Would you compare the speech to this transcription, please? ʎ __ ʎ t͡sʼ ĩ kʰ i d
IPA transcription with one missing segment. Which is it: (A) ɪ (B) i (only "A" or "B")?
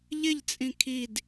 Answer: A